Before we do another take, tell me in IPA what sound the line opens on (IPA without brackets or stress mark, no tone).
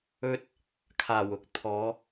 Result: ɵ